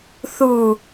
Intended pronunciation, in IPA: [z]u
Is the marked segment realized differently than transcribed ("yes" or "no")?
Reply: yes